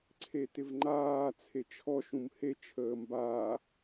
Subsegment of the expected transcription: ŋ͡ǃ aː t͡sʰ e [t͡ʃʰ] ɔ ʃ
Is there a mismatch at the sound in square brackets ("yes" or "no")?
no